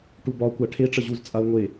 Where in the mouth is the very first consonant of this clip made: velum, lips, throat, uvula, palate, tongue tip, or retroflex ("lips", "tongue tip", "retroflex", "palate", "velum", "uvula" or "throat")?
retroflex